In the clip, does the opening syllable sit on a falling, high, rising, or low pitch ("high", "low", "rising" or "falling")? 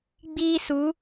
high